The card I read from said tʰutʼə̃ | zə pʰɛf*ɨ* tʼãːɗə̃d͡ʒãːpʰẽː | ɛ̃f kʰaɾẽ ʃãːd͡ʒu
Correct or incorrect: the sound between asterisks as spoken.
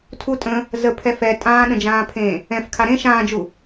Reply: incorrect: ɛ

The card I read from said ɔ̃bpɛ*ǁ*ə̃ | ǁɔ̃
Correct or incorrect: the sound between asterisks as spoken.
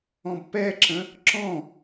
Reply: correct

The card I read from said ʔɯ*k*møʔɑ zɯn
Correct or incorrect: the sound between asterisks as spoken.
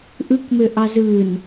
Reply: correct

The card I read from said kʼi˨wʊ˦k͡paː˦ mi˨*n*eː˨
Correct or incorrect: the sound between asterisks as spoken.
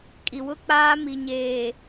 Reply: incorrect: ɲ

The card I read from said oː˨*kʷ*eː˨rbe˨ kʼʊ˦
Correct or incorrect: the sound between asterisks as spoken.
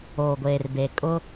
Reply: incorrect: ɡʷ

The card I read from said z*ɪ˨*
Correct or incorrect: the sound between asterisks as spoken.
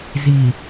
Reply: incorrect: i˨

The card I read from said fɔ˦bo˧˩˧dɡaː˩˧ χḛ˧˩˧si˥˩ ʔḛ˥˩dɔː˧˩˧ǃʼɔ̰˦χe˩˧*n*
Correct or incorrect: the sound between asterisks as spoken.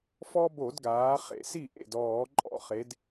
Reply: incorrect: d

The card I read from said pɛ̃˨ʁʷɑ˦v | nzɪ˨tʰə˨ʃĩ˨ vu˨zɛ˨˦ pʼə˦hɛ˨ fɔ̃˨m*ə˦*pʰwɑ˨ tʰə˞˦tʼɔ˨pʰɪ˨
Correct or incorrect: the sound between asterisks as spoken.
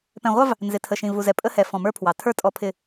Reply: incorrect: ə˞˦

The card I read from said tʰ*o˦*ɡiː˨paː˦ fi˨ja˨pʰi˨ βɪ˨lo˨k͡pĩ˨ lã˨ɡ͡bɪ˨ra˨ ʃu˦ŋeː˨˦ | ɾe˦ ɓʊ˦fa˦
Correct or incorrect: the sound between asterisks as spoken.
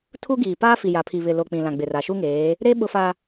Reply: incorrect: u˦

